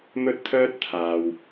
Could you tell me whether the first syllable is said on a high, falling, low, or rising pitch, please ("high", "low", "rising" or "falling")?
high